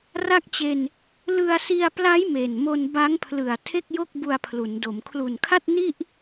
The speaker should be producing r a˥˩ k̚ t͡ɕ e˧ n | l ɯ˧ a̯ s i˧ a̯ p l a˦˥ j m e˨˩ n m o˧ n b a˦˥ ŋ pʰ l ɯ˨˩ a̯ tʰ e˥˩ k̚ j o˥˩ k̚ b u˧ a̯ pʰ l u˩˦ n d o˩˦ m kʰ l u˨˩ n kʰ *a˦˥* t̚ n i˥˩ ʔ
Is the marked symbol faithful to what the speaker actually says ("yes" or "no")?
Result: no